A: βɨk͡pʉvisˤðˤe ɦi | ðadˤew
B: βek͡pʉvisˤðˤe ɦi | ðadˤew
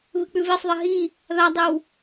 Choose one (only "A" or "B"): A